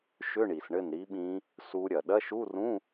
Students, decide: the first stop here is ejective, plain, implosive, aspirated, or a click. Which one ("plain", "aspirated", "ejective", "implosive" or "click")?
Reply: implosive